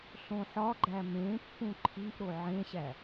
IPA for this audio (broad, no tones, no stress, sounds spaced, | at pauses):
ɬ õ ħ ɒ ɡ͡ǃ æ m ẽ pː ũ ǃʰ i ʔ ɾ o ʕ ẽ ɕ æ